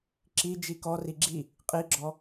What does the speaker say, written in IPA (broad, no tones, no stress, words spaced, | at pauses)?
ǁi d͡ʒikɔ riɡ͡ǁi | qʼiɡ͡ǁɔ